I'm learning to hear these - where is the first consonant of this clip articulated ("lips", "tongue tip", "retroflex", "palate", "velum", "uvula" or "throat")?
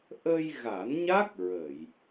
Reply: throat